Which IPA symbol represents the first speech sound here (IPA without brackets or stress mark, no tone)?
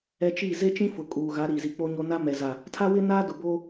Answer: ɛ